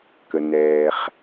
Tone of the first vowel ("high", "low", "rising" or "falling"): low